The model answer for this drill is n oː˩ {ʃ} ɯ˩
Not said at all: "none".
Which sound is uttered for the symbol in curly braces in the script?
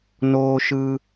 ʃ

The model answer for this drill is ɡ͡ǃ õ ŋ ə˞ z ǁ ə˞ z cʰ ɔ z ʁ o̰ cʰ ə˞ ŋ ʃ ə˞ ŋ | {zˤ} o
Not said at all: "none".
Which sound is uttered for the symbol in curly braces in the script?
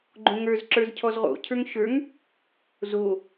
z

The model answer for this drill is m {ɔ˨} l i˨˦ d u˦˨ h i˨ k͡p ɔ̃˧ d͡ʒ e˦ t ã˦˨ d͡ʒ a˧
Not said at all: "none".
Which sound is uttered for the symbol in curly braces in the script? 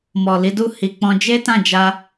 ɔ˨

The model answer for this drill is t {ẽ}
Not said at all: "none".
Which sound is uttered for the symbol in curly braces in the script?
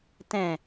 ɛ̃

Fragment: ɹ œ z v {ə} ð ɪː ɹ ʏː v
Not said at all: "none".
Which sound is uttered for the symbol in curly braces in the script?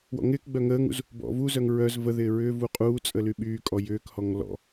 ə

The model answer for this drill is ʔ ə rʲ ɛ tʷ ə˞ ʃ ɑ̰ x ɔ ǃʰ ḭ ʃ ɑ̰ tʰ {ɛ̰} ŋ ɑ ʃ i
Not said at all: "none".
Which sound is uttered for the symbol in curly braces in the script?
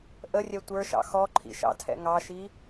ɛ̰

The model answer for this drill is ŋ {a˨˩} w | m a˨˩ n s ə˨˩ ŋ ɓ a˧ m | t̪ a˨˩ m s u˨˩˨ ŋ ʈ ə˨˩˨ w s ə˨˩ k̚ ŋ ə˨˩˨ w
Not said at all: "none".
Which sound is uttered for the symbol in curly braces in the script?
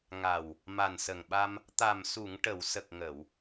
a˨˩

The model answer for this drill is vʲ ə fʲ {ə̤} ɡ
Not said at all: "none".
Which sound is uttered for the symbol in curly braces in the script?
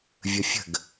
ə̤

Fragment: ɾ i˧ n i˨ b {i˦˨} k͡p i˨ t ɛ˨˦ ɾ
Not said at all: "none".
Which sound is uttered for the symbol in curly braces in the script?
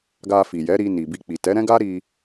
i˧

